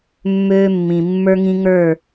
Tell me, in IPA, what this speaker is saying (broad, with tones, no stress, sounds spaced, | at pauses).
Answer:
mː øː˦ mː ĩ˨ mː ə˞˦ ŋ ĩ˦ ŋ ə˞˦˨